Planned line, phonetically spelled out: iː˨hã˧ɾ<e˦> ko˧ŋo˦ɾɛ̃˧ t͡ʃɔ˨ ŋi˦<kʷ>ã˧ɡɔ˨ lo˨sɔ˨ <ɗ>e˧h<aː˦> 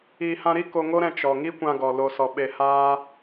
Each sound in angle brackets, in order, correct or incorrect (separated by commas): incorrect, correct, incorrect, correct